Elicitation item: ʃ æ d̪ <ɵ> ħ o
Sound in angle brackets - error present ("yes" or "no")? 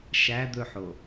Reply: no